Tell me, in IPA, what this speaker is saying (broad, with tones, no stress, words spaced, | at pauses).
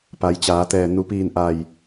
pa˩˧jt͡ɕaː˩˧t̪ɛː˧˩ nu˩˧piː˧˩nʔa˧˩j